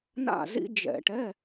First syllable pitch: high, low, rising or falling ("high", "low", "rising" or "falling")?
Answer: falling